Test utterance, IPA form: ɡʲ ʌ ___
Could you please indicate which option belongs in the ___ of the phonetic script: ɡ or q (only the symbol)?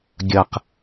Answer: q